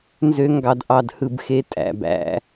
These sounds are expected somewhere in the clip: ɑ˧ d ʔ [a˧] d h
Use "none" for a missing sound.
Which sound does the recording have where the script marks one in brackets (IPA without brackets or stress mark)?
ɑ˧